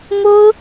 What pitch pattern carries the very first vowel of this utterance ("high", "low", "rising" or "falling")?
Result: high